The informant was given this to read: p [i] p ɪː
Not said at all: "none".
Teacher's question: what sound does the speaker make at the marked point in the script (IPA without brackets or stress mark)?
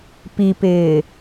i